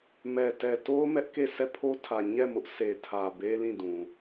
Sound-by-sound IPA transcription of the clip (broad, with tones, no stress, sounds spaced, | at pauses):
m ɛ˨ t ɛ˨ t o˦ ʊ̯ m ɛ˦ ʔ k e˦˨ s ɛ˦˨ pʰ o˦ tʰ ä˨ ɲ ɛ˦˨ m ʊ˦ ʔ sʰ e˨ tʰ ä˨ b e˦ l ĩ˦˨ d ũ˨